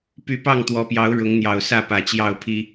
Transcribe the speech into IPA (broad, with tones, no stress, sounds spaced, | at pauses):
p y˨˦ p ɑ˥˨ ŋ t̪ w ɔ˨˦ p j ɑ˨˦ ʊ̯ ɻ ʊ˨˦ ŋ n̪ j ɑ˨˩ ʊ̯ s ä˥˨ p ä˨˩ t͡ɕ j ɑ˥˨ ʊ̯ pʰ i˦